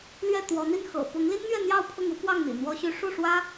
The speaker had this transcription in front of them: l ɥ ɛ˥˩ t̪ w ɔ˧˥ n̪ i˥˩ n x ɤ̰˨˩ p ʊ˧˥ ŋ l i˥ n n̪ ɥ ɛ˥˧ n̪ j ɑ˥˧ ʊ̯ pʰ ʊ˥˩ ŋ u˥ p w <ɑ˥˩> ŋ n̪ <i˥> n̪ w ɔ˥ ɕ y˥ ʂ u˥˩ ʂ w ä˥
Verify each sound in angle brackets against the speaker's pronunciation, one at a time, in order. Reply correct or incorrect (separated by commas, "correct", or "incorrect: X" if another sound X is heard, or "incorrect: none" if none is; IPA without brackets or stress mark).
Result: correct, incorrect: ḭ˨˩